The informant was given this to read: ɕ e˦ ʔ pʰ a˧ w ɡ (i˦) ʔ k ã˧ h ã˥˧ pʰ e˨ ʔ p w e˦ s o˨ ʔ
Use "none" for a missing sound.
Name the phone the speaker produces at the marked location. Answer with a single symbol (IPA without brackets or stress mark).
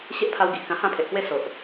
i˨